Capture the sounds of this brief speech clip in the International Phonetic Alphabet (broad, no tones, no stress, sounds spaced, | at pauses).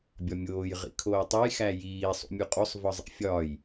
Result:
bʲ ɒ mʲ oː j ʁ ḭ kʰ oː tˤ u j x æ j iː sˤ ṵ mʲ u qʼ o sˤ v ɒ zˤ ḭ fʲ ɒː j